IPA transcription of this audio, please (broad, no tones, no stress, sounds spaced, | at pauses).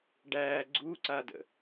ɖ æː ɡ͡ǀ u ǀ a d ə̰